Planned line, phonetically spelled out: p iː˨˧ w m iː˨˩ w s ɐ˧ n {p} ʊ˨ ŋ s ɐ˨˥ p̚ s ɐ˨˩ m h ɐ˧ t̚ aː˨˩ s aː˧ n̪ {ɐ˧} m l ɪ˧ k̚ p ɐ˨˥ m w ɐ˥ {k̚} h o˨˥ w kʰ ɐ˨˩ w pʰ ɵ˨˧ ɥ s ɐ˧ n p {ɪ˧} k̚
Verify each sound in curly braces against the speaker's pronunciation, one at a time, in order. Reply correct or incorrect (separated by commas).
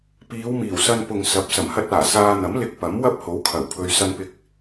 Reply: correct, incorrect, incorrect, correct